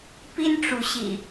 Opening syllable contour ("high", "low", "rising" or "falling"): high